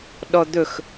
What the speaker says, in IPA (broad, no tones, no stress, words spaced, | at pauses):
ɗɔd̪ɵx